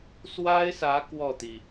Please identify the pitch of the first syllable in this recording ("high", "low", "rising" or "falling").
high